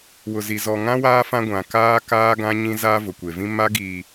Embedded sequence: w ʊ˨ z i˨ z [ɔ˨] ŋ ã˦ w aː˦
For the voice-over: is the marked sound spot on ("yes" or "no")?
yes